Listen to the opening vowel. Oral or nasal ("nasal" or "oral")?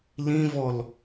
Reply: nasal